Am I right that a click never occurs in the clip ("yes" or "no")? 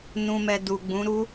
yes